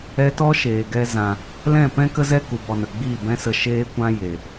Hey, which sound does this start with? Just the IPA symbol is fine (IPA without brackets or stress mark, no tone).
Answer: ɛ